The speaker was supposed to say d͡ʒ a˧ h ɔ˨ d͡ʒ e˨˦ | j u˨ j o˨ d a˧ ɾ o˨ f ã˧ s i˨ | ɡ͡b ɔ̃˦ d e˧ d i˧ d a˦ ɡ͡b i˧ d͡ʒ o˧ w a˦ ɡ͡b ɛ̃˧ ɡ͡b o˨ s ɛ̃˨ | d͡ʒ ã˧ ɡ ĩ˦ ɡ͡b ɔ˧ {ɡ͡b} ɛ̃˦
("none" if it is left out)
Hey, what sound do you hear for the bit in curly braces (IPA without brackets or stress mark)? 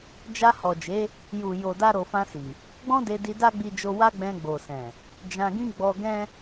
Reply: ɡ